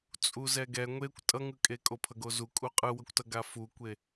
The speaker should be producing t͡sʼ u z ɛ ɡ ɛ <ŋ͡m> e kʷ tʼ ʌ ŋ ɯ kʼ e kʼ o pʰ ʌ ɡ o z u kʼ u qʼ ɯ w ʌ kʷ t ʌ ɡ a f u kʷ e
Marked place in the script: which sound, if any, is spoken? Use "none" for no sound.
ŋʷ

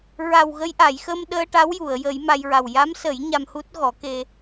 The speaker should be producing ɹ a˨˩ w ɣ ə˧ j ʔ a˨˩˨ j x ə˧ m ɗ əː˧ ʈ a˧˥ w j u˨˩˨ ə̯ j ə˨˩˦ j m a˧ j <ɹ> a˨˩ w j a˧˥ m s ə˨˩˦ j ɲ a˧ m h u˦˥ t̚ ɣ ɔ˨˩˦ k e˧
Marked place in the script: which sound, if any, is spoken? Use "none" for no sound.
ɹ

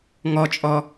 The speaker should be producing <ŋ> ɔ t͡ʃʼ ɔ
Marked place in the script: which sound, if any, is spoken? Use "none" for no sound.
ŋ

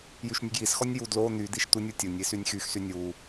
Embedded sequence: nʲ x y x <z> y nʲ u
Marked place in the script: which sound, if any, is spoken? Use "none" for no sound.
s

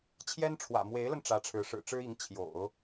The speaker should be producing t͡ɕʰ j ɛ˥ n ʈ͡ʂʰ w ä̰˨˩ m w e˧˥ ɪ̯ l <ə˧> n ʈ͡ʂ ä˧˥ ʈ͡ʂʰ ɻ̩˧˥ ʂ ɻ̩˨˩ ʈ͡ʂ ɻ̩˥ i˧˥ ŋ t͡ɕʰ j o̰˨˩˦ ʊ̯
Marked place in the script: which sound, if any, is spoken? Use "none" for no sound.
ə˧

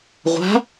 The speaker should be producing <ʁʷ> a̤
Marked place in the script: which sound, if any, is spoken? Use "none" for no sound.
ʁʷ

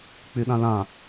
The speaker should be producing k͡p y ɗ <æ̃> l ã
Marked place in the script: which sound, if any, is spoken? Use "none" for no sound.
ã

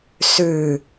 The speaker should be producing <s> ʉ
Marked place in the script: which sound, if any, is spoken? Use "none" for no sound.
s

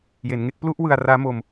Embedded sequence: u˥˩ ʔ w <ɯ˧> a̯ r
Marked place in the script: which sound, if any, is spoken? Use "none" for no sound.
ɯ˧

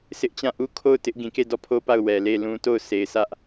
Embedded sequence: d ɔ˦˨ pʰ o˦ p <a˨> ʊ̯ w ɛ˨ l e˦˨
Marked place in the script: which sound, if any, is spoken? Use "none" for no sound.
a˦˨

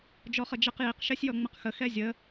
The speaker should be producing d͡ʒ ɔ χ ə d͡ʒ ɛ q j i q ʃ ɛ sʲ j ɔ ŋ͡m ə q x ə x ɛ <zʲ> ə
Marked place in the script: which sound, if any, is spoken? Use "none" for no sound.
zʲ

